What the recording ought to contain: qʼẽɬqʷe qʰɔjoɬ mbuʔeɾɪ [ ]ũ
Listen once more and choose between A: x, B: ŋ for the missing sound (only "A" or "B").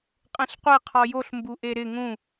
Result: B